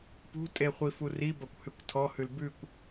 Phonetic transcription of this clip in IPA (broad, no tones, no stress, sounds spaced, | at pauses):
p ṳ tʼ e χʷ i f u r i b ɐ kʷ h ʉ kʷ tʰ ɔ h ʉ l b ʉ kʷ